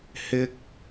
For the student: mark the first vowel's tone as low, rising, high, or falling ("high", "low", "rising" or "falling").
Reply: high